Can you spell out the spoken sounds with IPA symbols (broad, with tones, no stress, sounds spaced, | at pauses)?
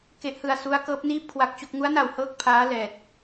k e˦˥ ʔ h ɯ˧ a̯ s u˦˥ a̯ k ɤː˦˥ p̚ n iː˥˩ p̚ kʰ w a˦˥ k̚ t͡ɕ o˦˥ k̚ ŋ u˦˥ a̯ n a˨˩ w h ɤː˦˥ k̚ pʰ aː˦˥ l ɛː˨˩ t̚